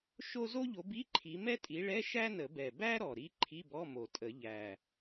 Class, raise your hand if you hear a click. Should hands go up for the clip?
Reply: yes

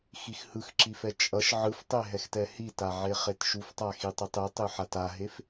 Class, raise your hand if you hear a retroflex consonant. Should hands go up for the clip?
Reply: no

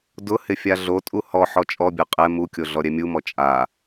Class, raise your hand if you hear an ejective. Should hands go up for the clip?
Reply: yes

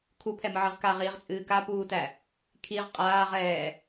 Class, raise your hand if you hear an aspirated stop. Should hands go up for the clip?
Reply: yes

